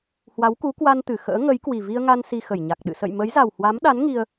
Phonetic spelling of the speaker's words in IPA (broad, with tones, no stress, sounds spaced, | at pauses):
h w a˨˦ w k u˨˦ k w a˧ n t̪ ɨ˧˩ x ə̰ː˧˥ ŋ ə˨˦ j k w i˨˩ v i˧ ə̯ ŋ a˧ n s i˧ x ə˧˩ j ɲ a˨˩ k̚ ɗ ɨ̰˧˨ s ə̰˧˨ j m ə˨˦ j z a˨˩ w h w a˨˦ m ɗ a˨˦ n ŋ i˧ ə̯